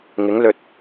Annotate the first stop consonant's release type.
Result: plain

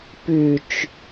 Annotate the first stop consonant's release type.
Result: plain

